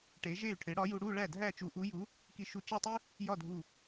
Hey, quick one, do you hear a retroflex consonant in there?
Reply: yes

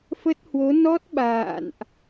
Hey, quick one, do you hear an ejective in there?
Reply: no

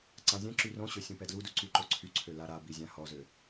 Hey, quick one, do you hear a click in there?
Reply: yes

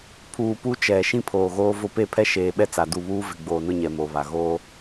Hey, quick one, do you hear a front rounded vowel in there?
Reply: no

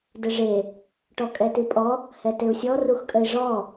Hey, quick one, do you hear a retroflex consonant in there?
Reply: yes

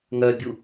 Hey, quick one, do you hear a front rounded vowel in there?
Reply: yes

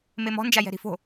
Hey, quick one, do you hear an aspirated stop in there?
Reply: no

